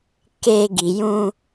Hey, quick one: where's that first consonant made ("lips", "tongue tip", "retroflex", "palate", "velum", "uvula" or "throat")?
velum